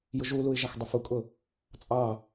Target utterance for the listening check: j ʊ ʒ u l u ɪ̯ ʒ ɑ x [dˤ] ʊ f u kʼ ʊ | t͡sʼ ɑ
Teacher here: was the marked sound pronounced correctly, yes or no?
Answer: yes